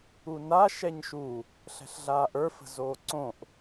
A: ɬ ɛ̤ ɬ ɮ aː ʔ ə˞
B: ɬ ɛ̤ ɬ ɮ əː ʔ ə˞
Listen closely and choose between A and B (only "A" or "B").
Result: A